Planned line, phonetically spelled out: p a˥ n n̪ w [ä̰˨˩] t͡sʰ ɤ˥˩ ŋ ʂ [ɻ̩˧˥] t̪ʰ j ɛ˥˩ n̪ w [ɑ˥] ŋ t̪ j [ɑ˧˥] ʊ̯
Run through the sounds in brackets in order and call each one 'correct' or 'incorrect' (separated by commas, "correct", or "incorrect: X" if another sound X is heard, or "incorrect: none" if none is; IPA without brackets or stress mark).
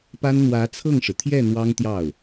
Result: incorrect: ä˧˥, incorrect: ɻ̩˩, correct, incorrect: ɑ˥˩